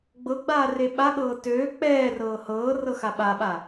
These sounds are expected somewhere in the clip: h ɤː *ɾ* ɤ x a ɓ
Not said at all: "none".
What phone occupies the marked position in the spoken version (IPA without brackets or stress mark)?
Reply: r